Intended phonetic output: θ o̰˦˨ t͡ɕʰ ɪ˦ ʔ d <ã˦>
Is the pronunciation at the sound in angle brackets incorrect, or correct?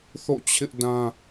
correct